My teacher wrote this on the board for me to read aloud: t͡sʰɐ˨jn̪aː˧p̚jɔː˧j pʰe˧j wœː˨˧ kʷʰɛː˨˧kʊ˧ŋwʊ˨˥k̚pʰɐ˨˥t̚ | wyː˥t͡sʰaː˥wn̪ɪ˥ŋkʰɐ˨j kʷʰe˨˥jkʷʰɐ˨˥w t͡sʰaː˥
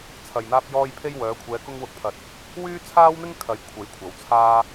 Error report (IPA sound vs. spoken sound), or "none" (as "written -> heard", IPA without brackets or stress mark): none